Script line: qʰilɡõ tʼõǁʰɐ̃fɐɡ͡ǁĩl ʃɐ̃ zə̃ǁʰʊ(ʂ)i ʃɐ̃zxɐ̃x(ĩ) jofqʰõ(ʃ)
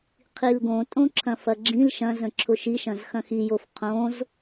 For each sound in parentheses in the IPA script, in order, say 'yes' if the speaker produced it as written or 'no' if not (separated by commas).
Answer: no, no, no